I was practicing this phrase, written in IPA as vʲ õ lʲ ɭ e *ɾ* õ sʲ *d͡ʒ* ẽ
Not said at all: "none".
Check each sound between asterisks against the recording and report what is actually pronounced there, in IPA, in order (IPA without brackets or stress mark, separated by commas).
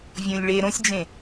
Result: ɾ, d͡ʒ